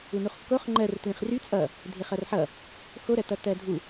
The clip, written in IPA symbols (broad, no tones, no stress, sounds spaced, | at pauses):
u n u χ kː o χ ŋ͡ǃ ɜ r t l ĩ χ r y t͡sʼ ʌ | dʱ ɪ χ ʌ r ħ ʌ | x o ɾ ɜ t ʌ t ɜ dʱ u